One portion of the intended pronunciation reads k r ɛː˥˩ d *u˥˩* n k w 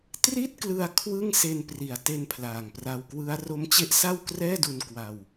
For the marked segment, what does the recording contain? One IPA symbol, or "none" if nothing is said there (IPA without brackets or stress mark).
u˧